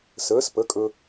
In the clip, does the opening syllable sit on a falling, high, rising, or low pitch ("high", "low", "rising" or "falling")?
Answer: rising